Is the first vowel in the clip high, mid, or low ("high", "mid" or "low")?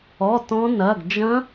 mid